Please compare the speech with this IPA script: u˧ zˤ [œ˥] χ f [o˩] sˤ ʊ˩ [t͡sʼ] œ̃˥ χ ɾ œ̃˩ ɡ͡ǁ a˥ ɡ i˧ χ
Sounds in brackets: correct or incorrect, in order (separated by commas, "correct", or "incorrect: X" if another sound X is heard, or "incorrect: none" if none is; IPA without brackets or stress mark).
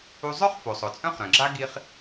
correct, correct, correct